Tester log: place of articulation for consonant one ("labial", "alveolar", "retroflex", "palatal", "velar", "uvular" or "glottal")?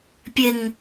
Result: labial